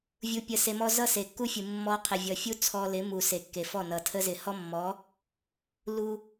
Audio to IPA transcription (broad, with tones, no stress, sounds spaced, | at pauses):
vʲ u˧ pʲ ə˧ s e˧ m ɔ˦ z ʌ˦ s e˨ kː u˦ fʲ ɯ˨ mː ɔ˧ qʰ ɪ˨ vʲ ʌ˨ fʲ u˦ t͡sʰ ɔ˧ l ɪ˨˦ m u˨ s e˨ kː e˨ f ɔ˦˨ n ʌ˨ tʰ ə˦ z ɪ˨ h ɔ˦ mː ɔ˨˦ | l u˦